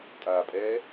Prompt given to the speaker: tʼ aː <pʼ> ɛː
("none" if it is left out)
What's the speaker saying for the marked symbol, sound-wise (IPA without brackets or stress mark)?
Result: pʼ